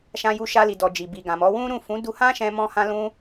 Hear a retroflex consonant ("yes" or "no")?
no